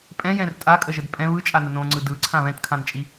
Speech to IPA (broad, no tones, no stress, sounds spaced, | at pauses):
pʼ ɛ̃ j ɛ̃ r tʼ a kʼ ə ʒ ə d pʼ ɛ̃ β ɯ t͡ʃʼ a n ə n õ ŋ͡ǀ ɯ d ɯ ǀʰ ã β ɛ̃ t kʰ ã n t͡ʃʼ i